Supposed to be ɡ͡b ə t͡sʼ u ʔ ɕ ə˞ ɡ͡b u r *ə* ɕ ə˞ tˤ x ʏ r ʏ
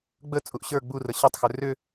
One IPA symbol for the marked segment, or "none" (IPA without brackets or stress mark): ə